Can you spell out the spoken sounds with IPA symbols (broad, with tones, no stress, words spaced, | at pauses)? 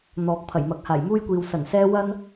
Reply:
n̪ɔː˨k̚ pʰɐ˨˩jmɐ˨k̚ haː˨˩jmuː˥jkʷiː˨w sɐ˨˩nsɛː˥ wɐ˥n